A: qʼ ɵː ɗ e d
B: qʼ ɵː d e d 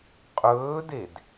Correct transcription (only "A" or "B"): B